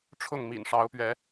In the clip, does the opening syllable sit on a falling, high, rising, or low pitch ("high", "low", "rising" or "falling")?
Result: falling